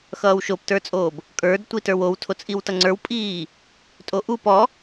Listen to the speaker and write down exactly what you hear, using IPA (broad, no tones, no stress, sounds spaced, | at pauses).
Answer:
x ʌː w ʃ o p t ə˞ t͡sʼ oː b | kʼ ə˞ d tʷ i t ə˞ w o w tʰ o t͡sʼ i w t ʌ ŋ͡ǀ ə˞ w pʼ iː | tʼ o ʔ u p ɔ